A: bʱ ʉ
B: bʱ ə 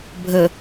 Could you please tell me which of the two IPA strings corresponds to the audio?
B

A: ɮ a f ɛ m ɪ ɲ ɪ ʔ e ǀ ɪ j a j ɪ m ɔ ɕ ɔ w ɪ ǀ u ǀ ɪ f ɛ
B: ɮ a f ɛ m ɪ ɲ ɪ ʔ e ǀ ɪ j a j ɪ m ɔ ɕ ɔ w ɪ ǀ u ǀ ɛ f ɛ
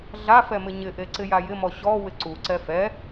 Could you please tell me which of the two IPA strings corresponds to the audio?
B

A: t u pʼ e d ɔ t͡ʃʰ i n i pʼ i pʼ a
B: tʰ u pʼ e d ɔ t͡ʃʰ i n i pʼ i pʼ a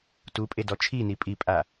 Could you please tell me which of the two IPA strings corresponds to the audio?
A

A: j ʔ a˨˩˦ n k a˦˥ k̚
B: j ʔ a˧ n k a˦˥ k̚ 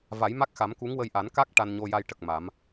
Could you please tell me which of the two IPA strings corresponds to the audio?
A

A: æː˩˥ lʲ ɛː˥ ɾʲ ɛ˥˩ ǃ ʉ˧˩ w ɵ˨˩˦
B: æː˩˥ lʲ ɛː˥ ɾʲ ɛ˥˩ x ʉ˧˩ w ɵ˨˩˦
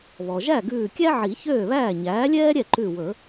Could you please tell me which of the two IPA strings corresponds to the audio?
A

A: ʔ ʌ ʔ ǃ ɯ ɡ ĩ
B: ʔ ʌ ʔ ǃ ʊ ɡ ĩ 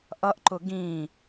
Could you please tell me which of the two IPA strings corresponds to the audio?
B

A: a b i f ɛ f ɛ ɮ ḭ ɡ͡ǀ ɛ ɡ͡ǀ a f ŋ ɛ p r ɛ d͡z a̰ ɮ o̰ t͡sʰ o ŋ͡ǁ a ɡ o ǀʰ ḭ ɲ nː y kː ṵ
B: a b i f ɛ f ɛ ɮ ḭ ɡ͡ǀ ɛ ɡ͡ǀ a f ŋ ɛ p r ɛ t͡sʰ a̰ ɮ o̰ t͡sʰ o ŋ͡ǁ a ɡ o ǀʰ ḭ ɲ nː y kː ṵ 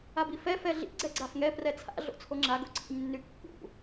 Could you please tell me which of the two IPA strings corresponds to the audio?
B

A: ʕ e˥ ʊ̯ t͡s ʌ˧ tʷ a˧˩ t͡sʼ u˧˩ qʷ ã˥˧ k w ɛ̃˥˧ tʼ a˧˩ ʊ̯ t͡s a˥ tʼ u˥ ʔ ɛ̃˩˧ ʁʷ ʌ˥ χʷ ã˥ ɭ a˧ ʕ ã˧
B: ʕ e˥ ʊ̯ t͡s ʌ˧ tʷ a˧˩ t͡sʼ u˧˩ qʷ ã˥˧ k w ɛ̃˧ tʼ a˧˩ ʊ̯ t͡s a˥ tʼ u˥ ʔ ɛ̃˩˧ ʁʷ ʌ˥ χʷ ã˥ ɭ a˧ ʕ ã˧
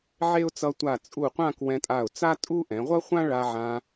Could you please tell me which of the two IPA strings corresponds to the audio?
B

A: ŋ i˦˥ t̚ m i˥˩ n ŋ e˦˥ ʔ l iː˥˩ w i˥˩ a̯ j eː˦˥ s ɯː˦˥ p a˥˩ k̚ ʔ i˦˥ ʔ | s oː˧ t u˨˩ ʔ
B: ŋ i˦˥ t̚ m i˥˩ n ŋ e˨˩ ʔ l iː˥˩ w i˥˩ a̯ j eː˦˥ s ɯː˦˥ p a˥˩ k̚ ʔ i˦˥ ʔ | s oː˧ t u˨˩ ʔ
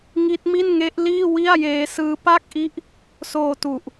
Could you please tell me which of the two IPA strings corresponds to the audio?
A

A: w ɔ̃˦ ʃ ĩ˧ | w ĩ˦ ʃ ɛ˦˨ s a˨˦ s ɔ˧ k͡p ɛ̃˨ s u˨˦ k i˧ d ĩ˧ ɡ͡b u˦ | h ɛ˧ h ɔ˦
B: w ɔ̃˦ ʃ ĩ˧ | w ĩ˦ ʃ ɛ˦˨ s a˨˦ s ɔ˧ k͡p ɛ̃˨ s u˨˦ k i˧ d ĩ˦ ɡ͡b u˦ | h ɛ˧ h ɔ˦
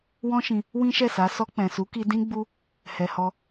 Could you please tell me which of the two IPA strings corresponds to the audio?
B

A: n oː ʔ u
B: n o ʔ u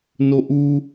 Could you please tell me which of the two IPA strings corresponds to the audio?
B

